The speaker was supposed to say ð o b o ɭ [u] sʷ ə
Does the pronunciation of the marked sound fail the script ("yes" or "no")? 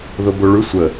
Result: yes